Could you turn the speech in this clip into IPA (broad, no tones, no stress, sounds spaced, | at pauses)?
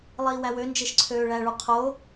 lˠ iː w æ w ø n d͡ʒ e ʃ ǀʰ øː ɭ æ ɭ u qʰ oː